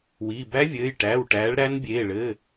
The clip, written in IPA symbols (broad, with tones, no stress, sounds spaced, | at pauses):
w iː˩˧˩ b æ˦˥ vʲ ɘː˩˧˩ j ʈ æː˩˧˩ w ʈ æː˨˦ ɭ ɾ æ˦˥ n bʲ eː˩˧˩ ɭ ɘː˩˧˩